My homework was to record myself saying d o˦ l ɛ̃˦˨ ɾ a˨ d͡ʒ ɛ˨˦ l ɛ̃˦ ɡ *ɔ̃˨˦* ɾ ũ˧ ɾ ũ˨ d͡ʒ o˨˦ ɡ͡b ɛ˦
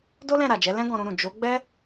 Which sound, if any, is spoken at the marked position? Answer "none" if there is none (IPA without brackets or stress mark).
ɔ̃˧